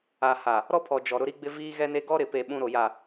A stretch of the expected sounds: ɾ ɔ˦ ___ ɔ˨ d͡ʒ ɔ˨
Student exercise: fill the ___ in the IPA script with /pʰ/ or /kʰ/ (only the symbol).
pʰ